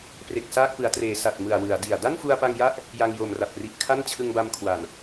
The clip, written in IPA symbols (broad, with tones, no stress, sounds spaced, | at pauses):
p r e˨˩ k̚ s aː˥˩ k̚ p ɯ˩˦ a̯ t r eː˩˦ s a˨˩ t̚ m ɯ˨˩ a̯ w ɯ˩˦ a̯ d i˨˩ a̯ d a˥˩ n f u˧ a̯ p a˧ ŋ j a˦˥ ʔ | j a˧ ŋ j o˨˩ m r a˨˩ p̚ r i˨˩ ʔ kʰ a˥˩ n t͡ɕʰ ɯ˧ ŋ b a˧ m kʰ w a˨˩ n